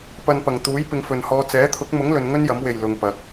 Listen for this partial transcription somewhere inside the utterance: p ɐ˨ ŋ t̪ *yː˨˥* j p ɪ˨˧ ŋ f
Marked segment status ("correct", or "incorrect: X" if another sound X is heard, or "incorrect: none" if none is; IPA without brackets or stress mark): incorrect: uː˨˥